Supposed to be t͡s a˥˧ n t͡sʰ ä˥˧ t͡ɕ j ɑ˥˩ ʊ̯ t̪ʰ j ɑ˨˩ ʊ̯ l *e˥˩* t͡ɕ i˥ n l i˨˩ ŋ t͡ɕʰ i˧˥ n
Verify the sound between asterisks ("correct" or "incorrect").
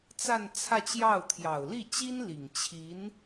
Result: incorrect